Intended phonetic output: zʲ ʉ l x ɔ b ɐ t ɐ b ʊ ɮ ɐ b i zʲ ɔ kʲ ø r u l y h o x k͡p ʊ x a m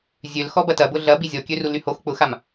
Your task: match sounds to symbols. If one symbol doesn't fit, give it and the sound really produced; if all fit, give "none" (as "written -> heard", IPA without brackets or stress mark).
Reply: ʉ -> ø